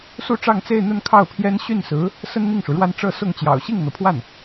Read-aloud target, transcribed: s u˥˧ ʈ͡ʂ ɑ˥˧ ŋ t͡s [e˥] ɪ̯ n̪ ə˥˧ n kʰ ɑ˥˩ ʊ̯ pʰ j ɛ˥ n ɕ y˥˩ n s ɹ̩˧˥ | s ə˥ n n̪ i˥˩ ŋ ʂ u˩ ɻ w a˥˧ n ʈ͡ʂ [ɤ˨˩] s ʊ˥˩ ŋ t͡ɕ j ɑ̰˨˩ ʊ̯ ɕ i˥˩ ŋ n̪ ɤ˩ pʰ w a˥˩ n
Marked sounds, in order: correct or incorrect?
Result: incorrect, incorrect

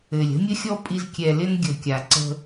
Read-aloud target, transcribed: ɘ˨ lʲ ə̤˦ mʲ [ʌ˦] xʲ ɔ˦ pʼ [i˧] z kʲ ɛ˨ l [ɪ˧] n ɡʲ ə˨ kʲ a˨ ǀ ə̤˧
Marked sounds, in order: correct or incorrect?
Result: incorrect, correct, correct

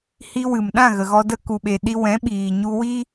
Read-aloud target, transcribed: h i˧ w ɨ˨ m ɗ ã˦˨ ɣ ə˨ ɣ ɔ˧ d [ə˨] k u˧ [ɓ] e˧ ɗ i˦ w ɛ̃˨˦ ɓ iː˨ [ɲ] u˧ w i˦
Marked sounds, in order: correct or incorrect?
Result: incorrect, correct, correct

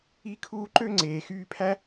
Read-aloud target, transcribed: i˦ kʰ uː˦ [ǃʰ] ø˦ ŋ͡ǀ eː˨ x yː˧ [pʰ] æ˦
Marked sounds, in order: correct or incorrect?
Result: incorrect, correct

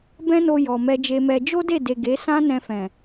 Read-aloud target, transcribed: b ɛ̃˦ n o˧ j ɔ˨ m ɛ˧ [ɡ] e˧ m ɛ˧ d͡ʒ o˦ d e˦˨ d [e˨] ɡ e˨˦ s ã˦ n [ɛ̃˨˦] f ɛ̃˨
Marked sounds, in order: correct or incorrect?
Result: incorrect, correct, incorrect

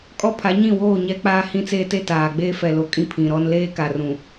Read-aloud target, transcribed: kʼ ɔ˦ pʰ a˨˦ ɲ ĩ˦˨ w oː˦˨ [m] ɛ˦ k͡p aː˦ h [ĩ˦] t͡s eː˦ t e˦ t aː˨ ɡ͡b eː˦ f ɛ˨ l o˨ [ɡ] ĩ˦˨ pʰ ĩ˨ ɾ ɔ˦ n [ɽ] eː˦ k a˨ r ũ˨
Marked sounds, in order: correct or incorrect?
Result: incorrect, correct, incorrect, incorrect

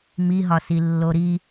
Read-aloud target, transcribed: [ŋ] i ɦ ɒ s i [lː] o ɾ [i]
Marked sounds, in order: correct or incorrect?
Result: incorrect, correct, correct

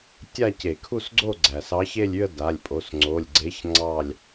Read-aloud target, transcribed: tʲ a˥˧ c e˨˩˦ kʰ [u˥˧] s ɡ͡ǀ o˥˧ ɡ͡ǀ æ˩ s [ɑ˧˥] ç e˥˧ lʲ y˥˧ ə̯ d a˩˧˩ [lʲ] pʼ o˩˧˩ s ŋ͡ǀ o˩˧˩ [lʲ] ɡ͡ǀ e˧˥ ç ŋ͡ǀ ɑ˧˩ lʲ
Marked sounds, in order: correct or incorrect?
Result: correct, correct, correct, correct

